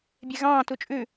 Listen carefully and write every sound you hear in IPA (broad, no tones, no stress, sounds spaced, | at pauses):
bʲ ɛ ɣ ɑ̃ː t u t͡ʃʼ ʉ